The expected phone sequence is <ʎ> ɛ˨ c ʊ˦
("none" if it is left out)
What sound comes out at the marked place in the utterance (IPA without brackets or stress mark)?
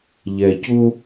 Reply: ʎ